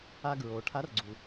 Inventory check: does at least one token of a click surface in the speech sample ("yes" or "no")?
yes